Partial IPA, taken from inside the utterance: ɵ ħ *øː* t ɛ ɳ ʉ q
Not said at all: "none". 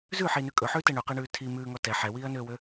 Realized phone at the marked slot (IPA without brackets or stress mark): ʉː